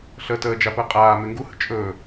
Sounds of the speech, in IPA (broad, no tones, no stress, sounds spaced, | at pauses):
ɬ ə t əː d͡ʒ a p əː qʼ aː m e ŋ ɡ u h ə̰ t͡ʃʼ ɵː